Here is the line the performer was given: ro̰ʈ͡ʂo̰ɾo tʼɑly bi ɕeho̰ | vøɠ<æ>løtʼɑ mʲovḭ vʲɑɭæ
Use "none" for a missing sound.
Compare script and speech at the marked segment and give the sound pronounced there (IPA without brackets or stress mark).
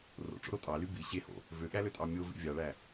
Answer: æ